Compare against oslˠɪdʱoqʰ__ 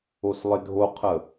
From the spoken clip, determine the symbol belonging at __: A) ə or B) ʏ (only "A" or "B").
A